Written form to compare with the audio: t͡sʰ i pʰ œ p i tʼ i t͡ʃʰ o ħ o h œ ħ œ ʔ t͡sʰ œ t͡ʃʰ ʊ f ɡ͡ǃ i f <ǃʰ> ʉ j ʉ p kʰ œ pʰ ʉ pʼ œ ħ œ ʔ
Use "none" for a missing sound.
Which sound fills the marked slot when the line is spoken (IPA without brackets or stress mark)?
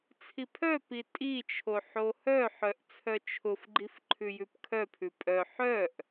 ǃʰ